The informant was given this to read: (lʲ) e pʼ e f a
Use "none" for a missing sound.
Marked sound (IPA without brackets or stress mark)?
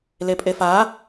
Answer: l